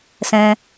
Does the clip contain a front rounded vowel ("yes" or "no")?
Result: no